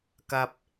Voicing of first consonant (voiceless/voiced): voiceless